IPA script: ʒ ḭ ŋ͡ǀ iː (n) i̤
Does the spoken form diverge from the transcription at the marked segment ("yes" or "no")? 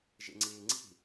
yes